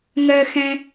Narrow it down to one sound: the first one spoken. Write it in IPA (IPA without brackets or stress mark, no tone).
ŋ